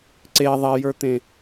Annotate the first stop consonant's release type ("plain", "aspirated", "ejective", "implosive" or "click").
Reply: click